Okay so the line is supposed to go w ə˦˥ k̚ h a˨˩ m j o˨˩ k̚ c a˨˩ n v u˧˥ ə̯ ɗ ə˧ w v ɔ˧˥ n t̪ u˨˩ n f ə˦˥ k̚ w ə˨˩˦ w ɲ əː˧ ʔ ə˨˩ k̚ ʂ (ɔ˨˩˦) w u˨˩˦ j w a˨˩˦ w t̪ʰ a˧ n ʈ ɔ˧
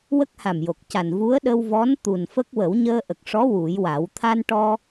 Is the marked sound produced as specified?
no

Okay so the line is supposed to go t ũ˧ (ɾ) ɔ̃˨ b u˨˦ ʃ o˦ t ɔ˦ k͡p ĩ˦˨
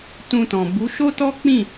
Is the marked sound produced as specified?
no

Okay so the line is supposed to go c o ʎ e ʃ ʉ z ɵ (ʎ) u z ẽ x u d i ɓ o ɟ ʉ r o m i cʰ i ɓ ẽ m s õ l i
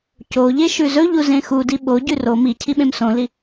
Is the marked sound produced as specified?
yes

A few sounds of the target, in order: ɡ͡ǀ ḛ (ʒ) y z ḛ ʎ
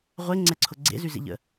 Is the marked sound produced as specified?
no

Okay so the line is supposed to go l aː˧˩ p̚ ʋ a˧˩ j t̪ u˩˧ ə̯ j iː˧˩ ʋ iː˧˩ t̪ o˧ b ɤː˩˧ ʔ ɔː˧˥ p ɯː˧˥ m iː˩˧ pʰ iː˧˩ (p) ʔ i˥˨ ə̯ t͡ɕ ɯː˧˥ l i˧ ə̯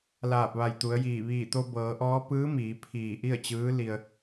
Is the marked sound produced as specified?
no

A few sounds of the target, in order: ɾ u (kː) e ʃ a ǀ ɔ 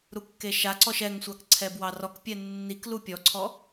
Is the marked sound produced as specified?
yes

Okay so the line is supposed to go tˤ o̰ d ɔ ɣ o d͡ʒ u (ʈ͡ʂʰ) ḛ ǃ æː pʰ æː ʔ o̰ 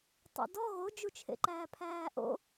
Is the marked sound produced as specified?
no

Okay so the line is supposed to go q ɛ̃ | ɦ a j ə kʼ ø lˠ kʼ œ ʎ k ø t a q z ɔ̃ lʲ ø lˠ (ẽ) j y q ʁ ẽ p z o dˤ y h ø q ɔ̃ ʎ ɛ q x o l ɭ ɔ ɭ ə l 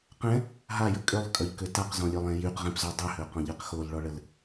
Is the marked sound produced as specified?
no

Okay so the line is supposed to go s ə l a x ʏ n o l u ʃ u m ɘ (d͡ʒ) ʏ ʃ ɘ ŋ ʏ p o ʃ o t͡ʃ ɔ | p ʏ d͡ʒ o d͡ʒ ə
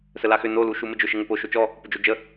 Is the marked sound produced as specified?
yes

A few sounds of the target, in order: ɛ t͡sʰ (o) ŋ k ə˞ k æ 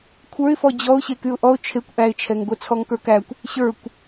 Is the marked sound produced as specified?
no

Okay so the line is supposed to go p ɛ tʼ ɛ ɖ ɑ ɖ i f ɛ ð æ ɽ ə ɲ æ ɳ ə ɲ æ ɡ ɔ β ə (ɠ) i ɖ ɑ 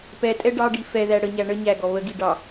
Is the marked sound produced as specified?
no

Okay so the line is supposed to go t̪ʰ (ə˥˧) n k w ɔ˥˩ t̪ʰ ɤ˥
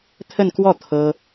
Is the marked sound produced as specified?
yes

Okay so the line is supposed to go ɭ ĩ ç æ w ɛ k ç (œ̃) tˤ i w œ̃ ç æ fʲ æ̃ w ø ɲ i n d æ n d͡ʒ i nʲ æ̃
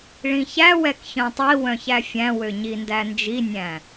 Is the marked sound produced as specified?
yes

